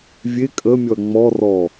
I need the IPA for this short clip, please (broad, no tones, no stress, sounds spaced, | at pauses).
vʲ e kʼ ə mʲ ɔ ɐ̯ ŋ͡m ɔ r ɔ